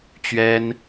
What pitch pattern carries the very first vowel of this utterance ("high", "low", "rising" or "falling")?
high